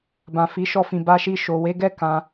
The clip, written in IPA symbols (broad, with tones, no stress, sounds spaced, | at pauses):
b ã˨ f i˨ ʃ ɔ˧ f ĩ˨ b a˧ ʃ i˧ ʃ o˨ w e˨˦ ɡ ɛ˦ k ã˧